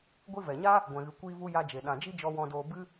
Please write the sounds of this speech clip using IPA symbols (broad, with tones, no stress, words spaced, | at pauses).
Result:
ɡʷi˧vɛ˨ɲa˦ | ɡʷɛ̃˨ɣɨ˨ kʷiː˦vu˦ ja˧d͡ʒe˨ ɗã˨d͡ʒi˦d͡ʒɔ˧ wɔ̃˦doː˦ bɨ˦